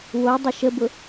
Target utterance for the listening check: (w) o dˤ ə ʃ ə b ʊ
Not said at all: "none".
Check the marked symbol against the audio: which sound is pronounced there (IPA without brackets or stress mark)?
w